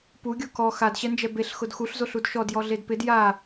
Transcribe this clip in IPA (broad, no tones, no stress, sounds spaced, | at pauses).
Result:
p u ɡʲ o k ɔ x a d ɕ ɛ n d͡ʒ ɛ b e ɬ x ʊ d x u ɬ z o ɬ u d ʃ ɔ d j ɔ ɮ e d p ɪ d j a